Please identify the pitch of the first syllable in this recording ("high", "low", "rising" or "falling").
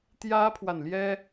high